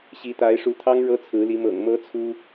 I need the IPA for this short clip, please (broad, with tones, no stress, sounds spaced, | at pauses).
ɕ i˧˥ t̪ a˧˥ ɪ̯ ʂ u˧˥ t̪ʰ ɑ˥ ŋ ɻ ɤ˥ t͡sʰ ɹ̩˧˥ l i˧˥ m ɤ̰˨˩ ŋ m ɤ˧˥ t͡sʰ u˥